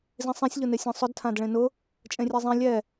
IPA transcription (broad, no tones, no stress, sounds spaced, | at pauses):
z ĩ sˤ ẽ sʲ ʎ ʊ n e sʲ ɛ̃ sˤ ʊ d tʰ ã d ɭ ẽ n ʊ | t͡ʃʼ ẽ rʲ ɛ zˤ ĩ lʲ ɛ